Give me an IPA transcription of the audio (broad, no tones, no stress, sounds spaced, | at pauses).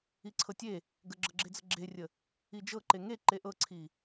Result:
i ǀʰ ɤ tʲ e | ɡ ə ɡ͡ǁ ɤ ɡ͡ǁ e d͡z ə ɡ͡ǁ e rʲ ə | i d͡ʒ ɤ ǃ e ŋ e ǃ e ʔ ɤ ǀʰ i